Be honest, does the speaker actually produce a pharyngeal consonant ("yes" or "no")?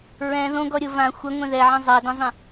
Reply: yes